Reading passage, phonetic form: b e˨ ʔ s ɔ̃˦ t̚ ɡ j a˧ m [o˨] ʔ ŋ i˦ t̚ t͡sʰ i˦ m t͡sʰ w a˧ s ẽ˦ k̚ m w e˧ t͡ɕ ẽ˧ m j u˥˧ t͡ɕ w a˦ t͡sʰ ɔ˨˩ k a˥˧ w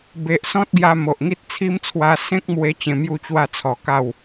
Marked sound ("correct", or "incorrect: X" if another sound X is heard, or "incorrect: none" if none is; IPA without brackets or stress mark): correct